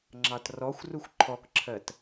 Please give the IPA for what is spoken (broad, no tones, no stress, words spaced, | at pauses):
ŋ͡ǁɑtrɔxʷruxʷ ǃʰɔkǁʰɜt